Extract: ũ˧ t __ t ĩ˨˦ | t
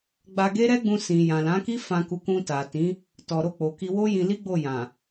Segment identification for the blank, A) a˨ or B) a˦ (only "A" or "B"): A